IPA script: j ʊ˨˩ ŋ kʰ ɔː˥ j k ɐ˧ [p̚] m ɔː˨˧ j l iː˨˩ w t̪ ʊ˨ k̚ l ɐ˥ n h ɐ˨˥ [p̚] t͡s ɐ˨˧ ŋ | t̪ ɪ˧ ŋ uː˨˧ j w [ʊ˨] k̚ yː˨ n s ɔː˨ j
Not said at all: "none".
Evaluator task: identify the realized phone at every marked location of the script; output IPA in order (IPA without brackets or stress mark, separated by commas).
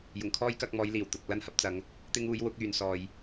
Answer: k̚, p̚, ʊ˨˥